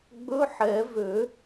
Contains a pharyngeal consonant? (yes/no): yes